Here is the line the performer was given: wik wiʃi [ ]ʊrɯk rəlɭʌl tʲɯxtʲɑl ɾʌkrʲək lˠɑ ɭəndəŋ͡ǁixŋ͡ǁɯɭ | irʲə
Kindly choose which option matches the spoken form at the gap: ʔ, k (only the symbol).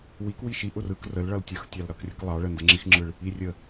ʔ